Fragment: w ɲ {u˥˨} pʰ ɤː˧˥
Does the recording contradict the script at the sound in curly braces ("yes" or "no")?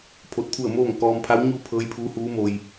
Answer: no